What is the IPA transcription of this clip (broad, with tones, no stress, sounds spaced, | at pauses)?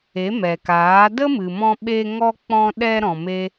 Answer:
e˨˦ m ɛ˨ k aː˨˦ d ə˦ m ɨ˨ m ɔ̃˧ ɓ e˧ ŋ ɔ˧ k͡p ɔ̃˧ ɗ ɛ˧ ɾ ɔ̃˨ m e˦